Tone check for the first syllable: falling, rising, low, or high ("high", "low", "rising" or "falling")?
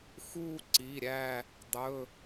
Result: falling